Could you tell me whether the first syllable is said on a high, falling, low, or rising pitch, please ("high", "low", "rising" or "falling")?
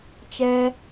high